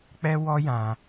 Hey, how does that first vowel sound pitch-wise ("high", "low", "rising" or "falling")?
high